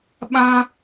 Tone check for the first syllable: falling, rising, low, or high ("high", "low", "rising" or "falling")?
high